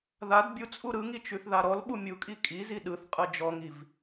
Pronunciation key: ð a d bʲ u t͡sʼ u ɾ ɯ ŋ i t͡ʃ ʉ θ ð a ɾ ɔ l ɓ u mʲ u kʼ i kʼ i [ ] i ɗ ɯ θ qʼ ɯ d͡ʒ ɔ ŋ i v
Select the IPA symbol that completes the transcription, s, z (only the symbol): z